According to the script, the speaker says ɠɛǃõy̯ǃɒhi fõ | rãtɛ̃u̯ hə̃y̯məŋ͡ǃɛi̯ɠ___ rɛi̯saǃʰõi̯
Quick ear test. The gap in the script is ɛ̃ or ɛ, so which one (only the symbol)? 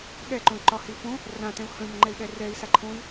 ɛ